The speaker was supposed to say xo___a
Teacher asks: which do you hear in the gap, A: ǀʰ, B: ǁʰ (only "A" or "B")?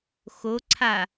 A